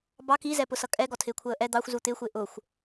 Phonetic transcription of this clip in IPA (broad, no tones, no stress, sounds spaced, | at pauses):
b ɑ k i z ɛ p ʊ s ʌ kʼ ɛ ɡ ɔ tʰ ɪː kʷʰ əː ʔ ɛ d̪ ɑ xʷ z u t̪ ɪː xʷ ɪː ʔ ʊː xʷ